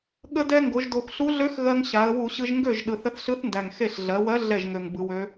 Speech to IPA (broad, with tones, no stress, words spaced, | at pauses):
ɠə˧dɛ˧ ŋɡo˩˧ʒdo˨˩xɬu˧˥ ɮø˧˥x ɣɜ˧ŋɕa˩˧ə̯ wu˧˩˧ɕɯ˧ʒ ŋɡø˥˩ʒ ɗɯ˨˩θə˧θɬɯ˧˥θndæ˨˩ŋ xe˥˩ɬ ɮɜ˩˧wɜ˧˥ ɮɛ˥˩ʒŋø˨˩ŋ bɯ˩˧wø˧˥